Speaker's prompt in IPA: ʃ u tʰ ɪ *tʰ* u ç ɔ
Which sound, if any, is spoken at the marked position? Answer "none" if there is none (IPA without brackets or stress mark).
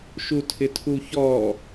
tʰ